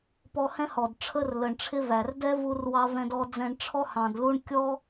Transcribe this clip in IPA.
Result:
pɔ˧hɛ̃˦hɔ˨d ʈ͡ʂʰə˧r lə˨ɳʈ͡ʂʰɪ˦væ˨r dɛ˦vu˧rwɑ˧ vɛ̃˧dɔ˧d͡zɛ̃˧ɳ ʈ͡ʂʰɔ˦hɑ̃˨dlu˦ɳ kʲɔ˦

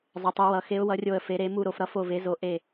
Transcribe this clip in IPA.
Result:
zˤə˩˧tˤu˩˧wʌ˩˧ xe˩˧ʊ̯wʌ˩˧rʲo˨˩ə̯ fe˩˧ɾe˩˧ mu˨˩ɾo˨˩f ɾʌ˩˧fo˨˩ve˩˧ zo˨˩ʔe˨˩

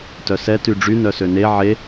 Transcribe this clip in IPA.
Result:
tœsɛ tyɖ͡ʐy nœsøne ʕe

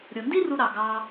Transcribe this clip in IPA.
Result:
ɾʲo˩ndi˥ru˨ ɾɑ˩ɡɑ˨

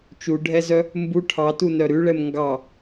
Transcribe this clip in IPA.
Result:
t͡ʃuɖʱɛzœ | mbu ʈʰɑtunœ ɾʉɭɛm ŋɡɑ

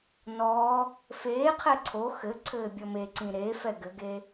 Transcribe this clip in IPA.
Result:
nɔ | feːqʰɛ ǀʰo xɘ ǀʰɘːbʲɔmeǀĩ ɾe fɛɡɘɡe

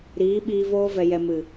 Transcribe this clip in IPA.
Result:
ɾiː˨˦ɓiː˧ voː˧vɛ˨jɛ˨ mɨ˨

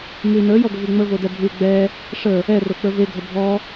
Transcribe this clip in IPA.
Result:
mʉ nə˞jɔɡʷəvi ŋ͡məvodɛ bʱʉ ɡ͡bɛ | ʂə | ɛro k͡pə˞veɡʱə bʱɔ

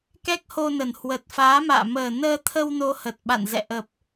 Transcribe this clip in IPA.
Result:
kɛ˦˥k̚ho˧nə˨˩n hwə˨˩t̚faː˨˦ma̰ː˧˨ məː˨˩nəː˧t̪ʰə˧w no˧hə˨˩t̚ɓa̰˧˨nzɛ̰˧˨ ʔə˨˩p̚

